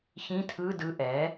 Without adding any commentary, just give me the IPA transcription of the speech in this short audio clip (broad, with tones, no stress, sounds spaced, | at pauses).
ç ĩ˧˥˧ tʰ ɯ˧˥˧ d ɯ˩˧˩ ʔ ɛ˩˥